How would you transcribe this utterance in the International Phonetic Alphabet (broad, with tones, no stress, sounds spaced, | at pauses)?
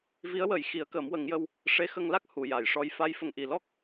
v i˧˥ ə̯ w ə˨˩˦ j x i˨˩˦ ə̯ k əː˨˩˦ m w ə˨˩˦ ŋ j ə˧ w | ʂ e˧˥ x ə˧ ŋ l a˦˥ k̚ h u˨˩˨ j a˨˩˨ j ʂ ɔ˧ j f a˧˥ j f ə˨˩ ŋ ʔ i˨˩ l ɔ˦˥ k̚